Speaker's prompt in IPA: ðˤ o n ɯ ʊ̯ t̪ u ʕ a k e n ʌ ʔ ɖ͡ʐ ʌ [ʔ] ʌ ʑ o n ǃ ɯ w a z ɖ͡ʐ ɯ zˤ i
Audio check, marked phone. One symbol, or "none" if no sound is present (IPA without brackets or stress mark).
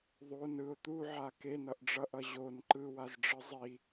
ʔ